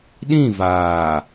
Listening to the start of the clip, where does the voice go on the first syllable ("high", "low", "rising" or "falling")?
falling